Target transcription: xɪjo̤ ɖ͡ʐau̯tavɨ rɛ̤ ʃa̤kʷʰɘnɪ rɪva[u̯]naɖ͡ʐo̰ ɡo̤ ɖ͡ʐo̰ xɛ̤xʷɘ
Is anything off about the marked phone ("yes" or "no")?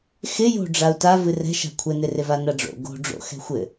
yes